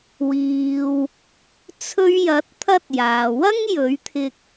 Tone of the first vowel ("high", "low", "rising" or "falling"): low